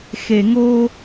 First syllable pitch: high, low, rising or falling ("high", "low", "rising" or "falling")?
low